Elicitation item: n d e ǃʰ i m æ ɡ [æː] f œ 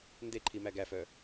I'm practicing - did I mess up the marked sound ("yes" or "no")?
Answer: yes